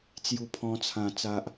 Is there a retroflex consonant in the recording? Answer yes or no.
no